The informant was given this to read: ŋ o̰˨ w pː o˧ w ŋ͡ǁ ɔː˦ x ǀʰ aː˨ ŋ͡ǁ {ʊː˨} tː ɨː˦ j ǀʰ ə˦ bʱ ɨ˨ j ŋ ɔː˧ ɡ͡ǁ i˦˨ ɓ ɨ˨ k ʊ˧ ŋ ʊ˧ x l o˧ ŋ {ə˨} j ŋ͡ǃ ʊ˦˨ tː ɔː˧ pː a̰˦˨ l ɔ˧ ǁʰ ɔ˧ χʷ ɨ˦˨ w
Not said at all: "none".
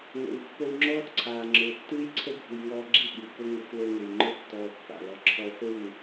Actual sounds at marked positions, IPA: ʊː˨, ʊ˨

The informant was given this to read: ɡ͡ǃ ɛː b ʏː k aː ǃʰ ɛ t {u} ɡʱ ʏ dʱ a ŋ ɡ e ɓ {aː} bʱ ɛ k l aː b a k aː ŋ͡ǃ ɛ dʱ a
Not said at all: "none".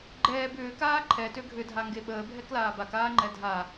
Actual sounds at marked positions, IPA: ø, əː

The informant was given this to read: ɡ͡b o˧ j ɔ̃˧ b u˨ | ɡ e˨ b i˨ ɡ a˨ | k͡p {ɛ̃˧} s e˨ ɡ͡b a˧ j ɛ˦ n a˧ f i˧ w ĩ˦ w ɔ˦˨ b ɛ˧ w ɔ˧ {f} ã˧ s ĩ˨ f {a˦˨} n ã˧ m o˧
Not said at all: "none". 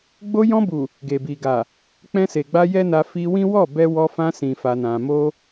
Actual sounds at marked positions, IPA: ɛ̃˧, f, a˧

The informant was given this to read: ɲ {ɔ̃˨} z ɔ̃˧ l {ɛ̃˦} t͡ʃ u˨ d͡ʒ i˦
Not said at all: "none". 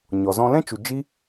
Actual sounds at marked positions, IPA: ɔ˨, ɛ̃˦

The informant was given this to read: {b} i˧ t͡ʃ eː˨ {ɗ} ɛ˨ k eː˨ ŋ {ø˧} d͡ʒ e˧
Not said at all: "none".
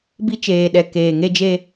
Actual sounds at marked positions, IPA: b, ɗ, e˧

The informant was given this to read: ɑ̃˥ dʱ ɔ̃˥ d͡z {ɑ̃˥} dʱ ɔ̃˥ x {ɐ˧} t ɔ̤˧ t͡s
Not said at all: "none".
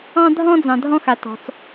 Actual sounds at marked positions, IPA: ɑ̃˧, a˧

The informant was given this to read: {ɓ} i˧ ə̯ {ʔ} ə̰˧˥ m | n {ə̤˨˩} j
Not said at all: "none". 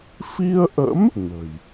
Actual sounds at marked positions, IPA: f, ʔ, ə̤˨˩

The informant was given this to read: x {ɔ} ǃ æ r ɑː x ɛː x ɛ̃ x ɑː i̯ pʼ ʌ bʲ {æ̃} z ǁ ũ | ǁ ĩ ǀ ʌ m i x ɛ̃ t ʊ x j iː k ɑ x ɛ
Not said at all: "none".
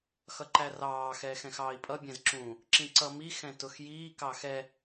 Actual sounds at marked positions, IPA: ʌ, æ̃

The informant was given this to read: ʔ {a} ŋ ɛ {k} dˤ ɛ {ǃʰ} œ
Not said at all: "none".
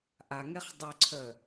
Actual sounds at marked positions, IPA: a, χ, ǀʰ

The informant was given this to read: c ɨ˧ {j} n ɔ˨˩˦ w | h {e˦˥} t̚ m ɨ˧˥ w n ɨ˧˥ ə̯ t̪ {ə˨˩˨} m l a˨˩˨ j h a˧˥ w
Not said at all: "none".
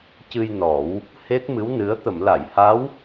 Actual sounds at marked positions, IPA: j, e˦˥, ə˨˩˨

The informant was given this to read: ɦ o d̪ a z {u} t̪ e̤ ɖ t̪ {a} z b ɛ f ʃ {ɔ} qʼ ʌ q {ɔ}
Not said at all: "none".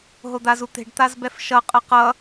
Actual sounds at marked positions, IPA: u, a, ʌ, ʌ

